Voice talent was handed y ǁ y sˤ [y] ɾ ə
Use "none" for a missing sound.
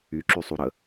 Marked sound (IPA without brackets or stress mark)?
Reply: u